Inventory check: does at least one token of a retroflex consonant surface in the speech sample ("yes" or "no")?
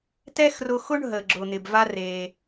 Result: yes